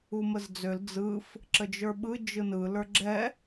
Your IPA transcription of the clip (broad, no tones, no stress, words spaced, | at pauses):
uməzd͡zøl d͡zɯf | ǁəd͡ʒə˞ɓɯ d͡ʒɯnɯ lə˞ɡ͡ǁɛ